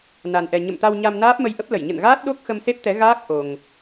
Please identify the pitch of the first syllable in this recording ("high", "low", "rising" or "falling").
low